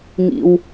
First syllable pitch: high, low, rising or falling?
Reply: low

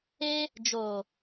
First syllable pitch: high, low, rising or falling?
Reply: high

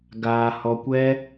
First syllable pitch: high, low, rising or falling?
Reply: high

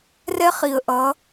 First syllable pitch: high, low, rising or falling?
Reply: high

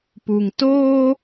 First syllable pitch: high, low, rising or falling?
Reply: low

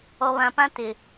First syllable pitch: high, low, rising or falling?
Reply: low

